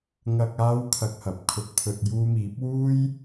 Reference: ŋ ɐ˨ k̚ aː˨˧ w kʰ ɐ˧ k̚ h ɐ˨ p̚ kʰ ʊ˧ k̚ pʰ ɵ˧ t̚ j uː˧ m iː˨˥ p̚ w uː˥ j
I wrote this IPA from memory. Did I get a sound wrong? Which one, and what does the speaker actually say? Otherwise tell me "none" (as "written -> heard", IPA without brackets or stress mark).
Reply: none